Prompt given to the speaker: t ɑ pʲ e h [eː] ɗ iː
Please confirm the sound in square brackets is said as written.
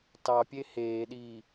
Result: yes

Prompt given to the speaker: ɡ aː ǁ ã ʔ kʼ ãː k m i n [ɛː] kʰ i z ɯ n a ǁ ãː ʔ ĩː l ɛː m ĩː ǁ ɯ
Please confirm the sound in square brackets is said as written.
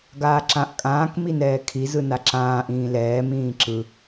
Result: yes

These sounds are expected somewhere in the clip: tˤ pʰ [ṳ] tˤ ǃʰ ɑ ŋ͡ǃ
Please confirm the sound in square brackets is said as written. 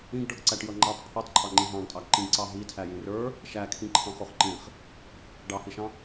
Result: no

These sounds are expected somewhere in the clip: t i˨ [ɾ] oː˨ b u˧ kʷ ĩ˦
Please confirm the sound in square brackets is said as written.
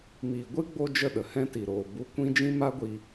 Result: yes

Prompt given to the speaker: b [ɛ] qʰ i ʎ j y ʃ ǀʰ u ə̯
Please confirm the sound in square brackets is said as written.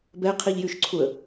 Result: yes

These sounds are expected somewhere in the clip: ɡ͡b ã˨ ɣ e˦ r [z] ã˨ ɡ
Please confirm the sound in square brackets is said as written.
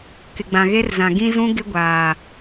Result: yes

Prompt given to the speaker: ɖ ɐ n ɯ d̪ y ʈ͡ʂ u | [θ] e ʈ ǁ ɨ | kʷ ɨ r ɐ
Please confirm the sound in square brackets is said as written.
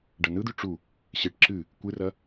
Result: no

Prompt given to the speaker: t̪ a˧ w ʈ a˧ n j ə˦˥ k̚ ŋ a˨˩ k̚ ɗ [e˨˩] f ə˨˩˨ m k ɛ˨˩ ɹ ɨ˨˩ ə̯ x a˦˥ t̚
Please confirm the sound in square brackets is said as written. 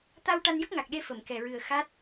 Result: no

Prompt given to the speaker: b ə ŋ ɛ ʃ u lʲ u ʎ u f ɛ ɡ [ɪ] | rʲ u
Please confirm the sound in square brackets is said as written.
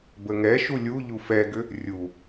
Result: no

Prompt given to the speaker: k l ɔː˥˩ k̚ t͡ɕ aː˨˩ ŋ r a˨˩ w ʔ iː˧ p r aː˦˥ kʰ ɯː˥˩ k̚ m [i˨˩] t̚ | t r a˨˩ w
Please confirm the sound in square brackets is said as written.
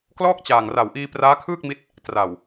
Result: no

